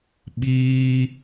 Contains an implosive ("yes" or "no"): yes